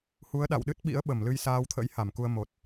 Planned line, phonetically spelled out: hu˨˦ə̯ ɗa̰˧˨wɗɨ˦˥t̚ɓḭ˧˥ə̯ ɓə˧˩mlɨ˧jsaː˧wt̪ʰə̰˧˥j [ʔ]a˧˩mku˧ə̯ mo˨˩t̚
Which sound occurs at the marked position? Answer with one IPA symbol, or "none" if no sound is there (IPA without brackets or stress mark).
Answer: h